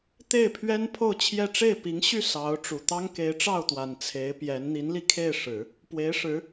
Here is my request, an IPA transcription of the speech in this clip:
t̪ e˥˩ ɪ̯ pʰ ɥ ɛ˥ n pʰ o˥˧ ʊ̯ t͡ɕʰ j ɛ˥˧ ʈ͡ʂ e˥˩ ɪ̯ p i˧˥ ŋ ɕ y˥˩ s ɑ˧˥ ʊ̯ ʈ͡ʂ u˨˩ t̪ ɑ˥ ŋ k e˧˥ ɪ̯ ʈ͡ʂ ɑ˥˩ ʊ̯ t̪ w a˨˩ n t͡sʰ e˧˥ ɪ̯ p j ɛ˧˥ n n̪ i˧˥ n l i˧ kʰ e˥˩ ɪ̯ ʂ ɻ̩˨˩˦ | p w e˧˥ ɪ̯ ʂ ɻ̩˧˥

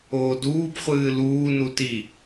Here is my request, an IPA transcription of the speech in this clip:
oː d uː b χʷ ɨː l uː n u t i

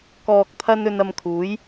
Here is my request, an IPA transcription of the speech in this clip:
k ɔː˧ k̚ t̪ʰ ɐ˥ n ɵ˧ n ɐ˧ m kʰ uː˨˥ j

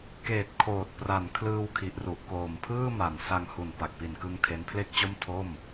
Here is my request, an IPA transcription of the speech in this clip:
k eː˨˩ t̚ kʰ oː˨˩ t̚ p r a˨˩ n kʰ l ɯː˧ w kʰ i˨˩ ʔ r u˨˩ ʔ k oː˨˩ m pʰ ɯː˥˩ m a˨˩ n s a˧ ŋ h u˨˩ n p a˨˩ k̚ p i˨˩ n k ɯ˧ ŋ tʰ e˦˥ n pʰ l e˥˩ k̚ t͡ɕ o˥˩ m tʰ o˥˩ m

